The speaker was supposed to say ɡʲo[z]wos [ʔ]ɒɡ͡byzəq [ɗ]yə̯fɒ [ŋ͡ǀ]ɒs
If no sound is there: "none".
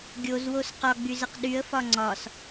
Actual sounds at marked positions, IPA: z, q, ɗ, ŋ͡ǀ

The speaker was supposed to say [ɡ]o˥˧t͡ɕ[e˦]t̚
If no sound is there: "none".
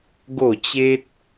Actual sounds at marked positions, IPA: ɡ, e˦

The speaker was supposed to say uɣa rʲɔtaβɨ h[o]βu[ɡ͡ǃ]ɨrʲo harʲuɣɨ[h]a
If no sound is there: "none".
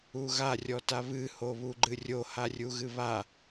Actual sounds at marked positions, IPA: o, ɡ͡ǃ, β

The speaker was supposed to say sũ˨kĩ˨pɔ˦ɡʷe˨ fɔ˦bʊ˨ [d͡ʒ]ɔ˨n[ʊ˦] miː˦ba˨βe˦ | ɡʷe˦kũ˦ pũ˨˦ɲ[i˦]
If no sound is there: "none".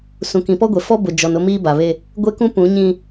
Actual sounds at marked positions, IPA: d͡ʒ, ʊ˦, ĩ˦

